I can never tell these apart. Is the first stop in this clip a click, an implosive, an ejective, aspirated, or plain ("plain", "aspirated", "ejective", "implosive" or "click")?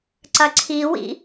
click